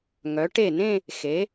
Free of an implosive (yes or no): yes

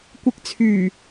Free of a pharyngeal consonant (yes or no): yes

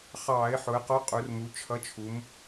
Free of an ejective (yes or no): no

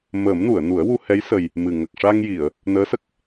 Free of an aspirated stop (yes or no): yes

